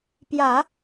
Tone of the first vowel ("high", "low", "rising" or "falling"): low